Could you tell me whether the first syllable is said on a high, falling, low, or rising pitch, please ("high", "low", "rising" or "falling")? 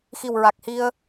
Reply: low